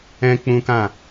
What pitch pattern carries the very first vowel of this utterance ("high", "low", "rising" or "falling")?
high